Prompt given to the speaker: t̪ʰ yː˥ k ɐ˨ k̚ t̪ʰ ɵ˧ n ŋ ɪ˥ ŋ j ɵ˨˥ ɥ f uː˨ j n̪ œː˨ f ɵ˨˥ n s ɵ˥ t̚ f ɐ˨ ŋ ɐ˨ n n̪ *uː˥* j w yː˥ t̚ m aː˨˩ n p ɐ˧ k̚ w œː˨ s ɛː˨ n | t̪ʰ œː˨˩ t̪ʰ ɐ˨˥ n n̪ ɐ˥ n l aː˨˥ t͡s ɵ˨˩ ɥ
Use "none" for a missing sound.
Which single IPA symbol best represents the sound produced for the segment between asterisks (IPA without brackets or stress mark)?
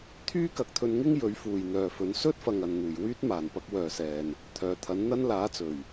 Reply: uː˨˩